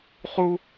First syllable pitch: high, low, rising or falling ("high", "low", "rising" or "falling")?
high